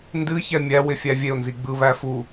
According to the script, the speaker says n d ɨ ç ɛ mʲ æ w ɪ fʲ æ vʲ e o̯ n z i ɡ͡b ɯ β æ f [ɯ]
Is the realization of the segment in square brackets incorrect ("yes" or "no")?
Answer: yes